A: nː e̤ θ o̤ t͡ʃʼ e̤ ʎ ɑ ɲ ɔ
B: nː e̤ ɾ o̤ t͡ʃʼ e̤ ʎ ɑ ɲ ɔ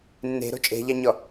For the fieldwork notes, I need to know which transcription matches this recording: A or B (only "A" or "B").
B